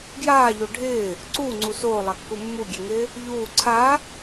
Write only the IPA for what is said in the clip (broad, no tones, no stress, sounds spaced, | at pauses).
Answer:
ɡ j aː ʎ o ɖʱ ɪː | ǀ uː ŋ͡ǀ u s oː lˠ a kː u mː u ɡʲ e ŋ ɪː | ʎ uː ǀʰ a